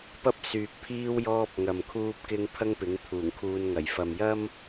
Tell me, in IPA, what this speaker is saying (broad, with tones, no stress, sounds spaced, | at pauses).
p ɐ˥ p̚ s yː˨ k̚ pʰ iː˥ w j ɔː˧ p̚ ŋ ɐ˨ m kʰ uː˧ p̚ k ɪ˧ ŋ pʰ ɐ˥ ŋ p ɪ˨˥ ŋ t̪ʰ uː˨˩ ŋ kʰ uː˧ n ŋ ɐ˨˩ j f ɐ˨ m j ɐ˥ m